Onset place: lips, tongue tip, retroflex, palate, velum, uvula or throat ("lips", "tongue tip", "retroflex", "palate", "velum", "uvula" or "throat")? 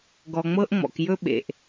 velum